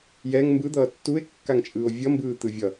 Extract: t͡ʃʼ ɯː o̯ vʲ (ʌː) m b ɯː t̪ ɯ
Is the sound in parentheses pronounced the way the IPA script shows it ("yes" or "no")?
no